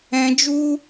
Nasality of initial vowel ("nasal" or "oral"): nasal